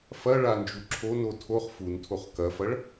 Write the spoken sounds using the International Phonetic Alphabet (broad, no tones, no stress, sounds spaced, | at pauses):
f ɐ ɭ a n d͡ʒ u ǁʰ o n o tʰ o χ f u n tʰ o χ k ɐ f ɐ ɭ